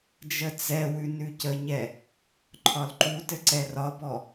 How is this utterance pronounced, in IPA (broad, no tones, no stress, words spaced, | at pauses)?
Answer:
d͡ʒət͡sɛwʉ nʉcəɲɛ | ǃʰɒlǃutɘ ǀɛrɒbɔ